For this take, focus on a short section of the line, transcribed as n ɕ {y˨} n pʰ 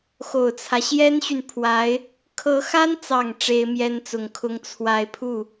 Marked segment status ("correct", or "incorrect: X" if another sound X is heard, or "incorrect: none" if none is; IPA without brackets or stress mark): correct